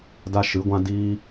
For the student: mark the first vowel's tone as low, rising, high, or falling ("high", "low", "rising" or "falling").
high